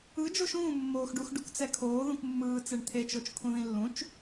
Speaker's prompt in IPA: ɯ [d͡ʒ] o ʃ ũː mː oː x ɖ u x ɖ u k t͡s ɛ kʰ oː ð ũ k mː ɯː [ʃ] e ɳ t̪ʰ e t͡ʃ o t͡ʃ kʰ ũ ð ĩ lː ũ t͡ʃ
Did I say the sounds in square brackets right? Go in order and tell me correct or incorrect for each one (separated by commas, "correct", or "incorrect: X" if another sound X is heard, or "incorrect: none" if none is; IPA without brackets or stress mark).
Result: correct, incorrect: t͡s